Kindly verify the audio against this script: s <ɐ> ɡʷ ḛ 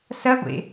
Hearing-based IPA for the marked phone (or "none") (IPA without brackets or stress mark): ɐ